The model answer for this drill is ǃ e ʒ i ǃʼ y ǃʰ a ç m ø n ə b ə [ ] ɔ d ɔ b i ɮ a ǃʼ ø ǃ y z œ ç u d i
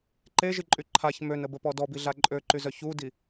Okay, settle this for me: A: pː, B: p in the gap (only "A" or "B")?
B